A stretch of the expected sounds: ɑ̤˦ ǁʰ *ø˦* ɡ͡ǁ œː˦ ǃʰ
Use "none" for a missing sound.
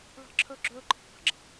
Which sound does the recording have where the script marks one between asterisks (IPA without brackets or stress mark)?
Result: œ˦